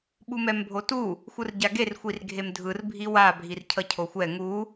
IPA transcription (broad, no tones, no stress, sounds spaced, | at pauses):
ɓ u m ɛ m bʱ o t u | xʷ ɯ r ɟ a ɡ e r xʷ i r ɡʱ e m dʱ ɯ r bʱ i w a bʱ i r cʰ ʌ cʰ o xʷ ɛ ŋ u